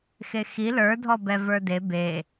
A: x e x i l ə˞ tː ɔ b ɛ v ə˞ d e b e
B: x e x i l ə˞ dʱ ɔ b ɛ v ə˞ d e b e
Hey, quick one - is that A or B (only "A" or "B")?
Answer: B